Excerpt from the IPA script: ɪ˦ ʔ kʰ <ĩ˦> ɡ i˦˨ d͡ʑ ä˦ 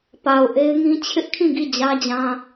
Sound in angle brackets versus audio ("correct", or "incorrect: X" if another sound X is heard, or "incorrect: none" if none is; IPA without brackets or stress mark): incorrect: ĩ˦˨